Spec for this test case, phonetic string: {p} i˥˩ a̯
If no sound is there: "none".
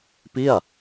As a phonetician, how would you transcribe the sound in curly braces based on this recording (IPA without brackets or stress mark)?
p